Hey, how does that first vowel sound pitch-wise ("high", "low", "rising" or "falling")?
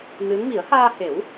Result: rising